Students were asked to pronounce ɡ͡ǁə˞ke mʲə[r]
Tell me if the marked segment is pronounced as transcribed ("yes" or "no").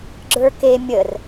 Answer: yes